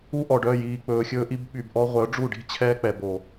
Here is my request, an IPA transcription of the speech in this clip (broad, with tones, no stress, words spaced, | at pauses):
u˧ʔɔ˨ɖœ˦˨jiː˨ k͡pɵː˨xʲɵː˧ʔi˧b ɓy˨bʔɔ˧ʁʷœ˨˦ ɖ͡ʐu˦˨ɖi̤˦ t͡ɕʰɛː˧k͡pɛ˨bo˨